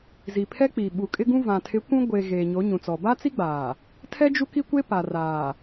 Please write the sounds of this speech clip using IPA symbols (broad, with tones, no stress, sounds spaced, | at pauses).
z i˨ pʰ ɛ˦ k͡p i˨ ɓ u˨ kʼ ɪ˦ ɡ ũ˦ v ã˨ tʰ ɪ˨˦ kʷ ũ˦ ɡʷ e˨ ɣ eː˨ ɲ o˨˦ ɲ ũ˨ t͡s ɔ˨ b a˦ t͡s i˦ ɡ͡b aː˨ | tʰ ɛ˦ d͡ʒ u˦ k i˦ kʷ e˦ p a˨ r aː˨